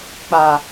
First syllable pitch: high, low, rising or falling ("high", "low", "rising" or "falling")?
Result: low